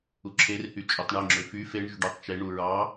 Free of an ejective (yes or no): no